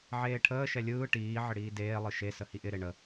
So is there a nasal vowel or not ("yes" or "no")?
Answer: no